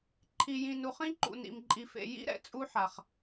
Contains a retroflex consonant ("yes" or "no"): no